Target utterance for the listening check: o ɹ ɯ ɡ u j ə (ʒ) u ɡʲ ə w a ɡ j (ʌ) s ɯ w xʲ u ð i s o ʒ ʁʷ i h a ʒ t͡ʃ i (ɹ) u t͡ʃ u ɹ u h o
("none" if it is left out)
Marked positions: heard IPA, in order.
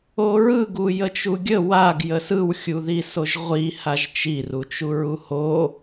t͡ʃ, ə, r

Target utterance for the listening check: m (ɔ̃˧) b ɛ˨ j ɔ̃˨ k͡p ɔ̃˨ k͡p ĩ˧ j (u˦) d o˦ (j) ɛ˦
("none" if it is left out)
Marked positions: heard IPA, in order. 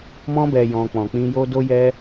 ɔ̃˧, o˦, j

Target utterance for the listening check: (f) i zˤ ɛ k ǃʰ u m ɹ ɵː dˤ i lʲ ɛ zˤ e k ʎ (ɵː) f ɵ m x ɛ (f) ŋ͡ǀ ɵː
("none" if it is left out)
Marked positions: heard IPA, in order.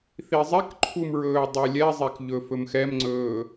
θ, ɵ, m

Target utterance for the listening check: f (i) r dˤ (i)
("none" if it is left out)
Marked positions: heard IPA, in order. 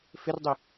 ɪ, i

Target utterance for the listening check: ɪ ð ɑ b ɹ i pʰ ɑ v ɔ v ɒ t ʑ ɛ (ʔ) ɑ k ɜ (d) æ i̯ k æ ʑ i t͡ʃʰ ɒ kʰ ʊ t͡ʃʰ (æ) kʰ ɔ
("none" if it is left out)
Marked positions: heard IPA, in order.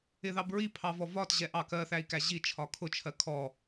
ʔ, θ, ɜ

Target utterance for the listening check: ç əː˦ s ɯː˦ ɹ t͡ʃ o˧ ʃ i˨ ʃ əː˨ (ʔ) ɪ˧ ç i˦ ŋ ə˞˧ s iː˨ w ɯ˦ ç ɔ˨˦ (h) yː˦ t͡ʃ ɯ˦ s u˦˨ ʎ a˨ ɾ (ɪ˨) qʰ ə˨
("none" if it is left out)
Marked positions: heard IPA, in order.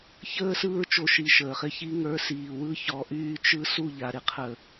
χ, ʔ, ɪ˧

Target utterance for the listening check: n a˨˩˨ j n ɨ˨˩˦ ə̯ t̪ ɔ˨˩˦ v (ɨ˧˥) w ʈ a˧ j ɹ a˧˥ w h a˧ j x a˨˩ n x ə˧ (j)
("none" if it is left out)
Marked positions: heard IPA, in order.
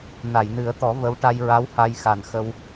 ə˧˥, w

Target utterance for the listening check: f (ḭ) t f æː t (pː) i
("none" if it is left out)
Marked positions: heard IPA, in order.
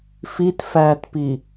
i, p

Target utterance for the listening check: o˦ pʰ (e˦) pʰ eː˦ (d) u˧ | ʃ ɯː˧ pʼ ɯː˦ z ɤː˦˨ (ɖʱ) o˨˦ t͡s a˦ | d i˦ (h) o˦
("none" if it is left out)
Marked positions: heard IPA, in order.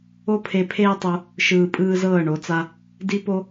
e˧, tˤ, ɳ, p

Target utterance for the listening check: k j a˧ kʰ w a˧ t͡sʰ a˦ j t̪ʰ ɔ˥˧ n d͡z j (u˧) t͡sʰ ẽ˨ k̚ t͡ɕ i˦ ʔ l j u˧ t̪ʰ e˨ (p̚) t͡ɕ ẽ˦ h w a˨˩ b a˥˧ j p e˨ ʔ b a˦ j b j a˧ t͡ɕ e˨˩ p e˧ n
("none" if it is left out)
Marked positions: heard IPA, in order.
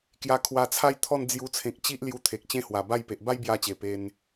u˧, k̚

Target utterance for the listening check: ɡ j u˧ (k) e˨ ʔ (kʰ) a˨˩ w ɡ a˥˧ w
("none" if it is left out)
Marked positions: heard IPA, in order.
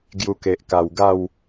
k, k

